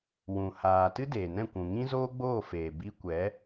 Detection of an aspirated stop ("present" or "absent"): absent